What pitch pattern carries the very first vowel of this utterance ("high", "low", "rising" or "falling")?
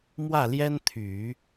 falling